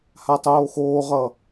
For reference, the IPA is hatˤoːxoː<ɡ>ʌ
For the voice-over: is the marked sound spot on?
no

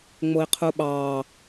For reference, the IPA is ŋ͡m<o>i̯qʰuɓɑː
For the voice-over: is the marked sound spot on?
yes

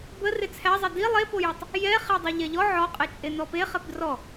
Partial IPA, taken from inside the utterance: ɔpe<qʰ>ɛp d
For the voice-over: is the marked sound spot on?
no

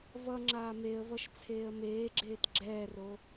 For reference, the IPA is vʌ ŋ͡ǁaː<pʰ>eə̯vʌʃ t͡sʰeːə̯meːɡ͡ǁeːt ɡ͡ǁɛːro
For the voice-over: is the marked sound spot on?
no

